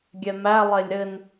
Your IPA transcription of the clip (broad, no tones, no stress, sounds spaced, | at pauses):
ɡʲ ɛ m æ lˠ e lʲ ɾ ɘ n